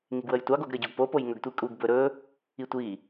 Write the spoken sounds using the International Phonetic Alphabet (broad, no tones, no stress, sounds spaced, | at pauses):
ŋ i ɡ w ə j tʷ ɑ ɡ o ɡ ɾ ə ɟ o ɡ p o p o j ŋ ɵ ɡ tʷ i kʼ u ɡ b ɵ ɾ ɵ | i tʷ i